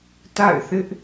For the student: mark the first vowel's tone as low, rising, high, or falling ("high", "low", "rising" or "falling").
falling